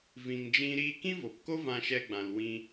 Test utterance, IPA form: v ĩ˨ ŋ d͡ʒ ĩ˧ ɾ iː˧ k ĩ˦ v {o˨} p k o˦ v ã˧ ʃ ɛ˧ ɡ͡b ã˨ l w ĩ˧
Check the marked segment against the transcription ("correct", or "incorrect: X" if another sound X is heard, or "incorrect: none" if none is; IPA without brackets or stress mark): correct